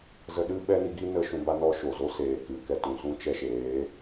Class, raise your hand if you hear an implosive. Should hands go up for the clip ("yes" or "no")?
yes